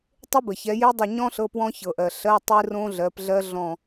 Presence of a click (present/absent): absent